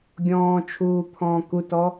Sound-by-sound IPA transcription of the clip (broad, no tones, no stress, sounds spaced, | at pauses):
ɡʲ ɔ̃ː t͡ʃʰ uː pʰ ɔ̃ː k u t ɔ